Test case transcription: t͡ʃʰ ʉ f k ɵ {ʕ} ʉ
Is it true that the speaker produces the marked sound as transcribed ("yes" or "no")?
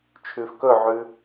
yes